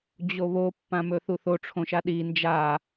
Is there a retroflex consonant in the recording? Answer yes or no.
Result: yes